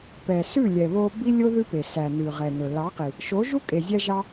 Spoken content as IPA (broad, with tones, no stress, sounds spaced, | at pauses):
p ɛ˨ s ʉ˦˨ lʲ ɛ˨ β o˧ b i˦ lʲ o˦ ð ʉ˦ p e˨ s æ˨ n ʉ˨ ʁ ɛ˨ n ɵ˨ l ɑ˨˦ q i˨ | ʃ o˨˦ ʒ u˦ kʼ e˨ zʲ æ˧ ʒ ɑ˧